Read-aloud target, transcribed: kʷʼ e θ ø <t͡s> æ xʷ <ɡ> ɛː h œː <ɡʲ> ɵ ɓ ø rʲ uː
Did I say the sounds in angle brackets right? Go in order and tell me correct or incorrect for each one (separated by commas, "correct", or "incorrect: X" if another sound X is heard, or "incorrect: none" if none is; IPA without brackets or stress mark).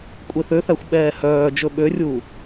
incorrect: θ, incorrect: ɓ, incorrect: d͡ʒ